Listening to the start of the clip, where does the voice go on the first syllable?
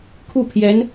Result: falling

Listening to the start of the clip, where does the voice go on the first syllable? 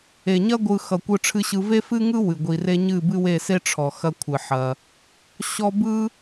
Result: low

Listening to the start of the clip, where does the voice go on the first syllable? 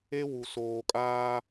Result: high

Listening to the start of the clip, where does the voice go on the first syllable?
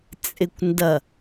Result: low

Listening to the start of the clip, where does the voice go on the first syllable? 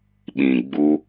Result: low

